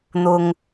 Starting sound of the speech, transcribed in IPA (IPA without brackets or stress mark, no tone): n̪